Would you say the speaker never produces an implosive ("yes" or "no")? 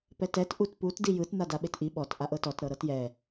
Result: no